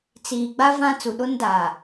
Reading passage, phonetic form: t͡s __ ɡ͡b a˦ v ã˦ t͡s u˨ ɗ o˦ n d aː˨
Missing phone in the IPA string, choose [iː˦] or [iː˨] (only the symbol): iː˨